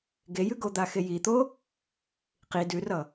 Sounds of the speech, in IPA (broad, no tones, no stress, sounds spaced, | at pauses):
ɡ e j ʉ ɡ o d̪ a x e j i t̪ o | q i d ʉ r ʌ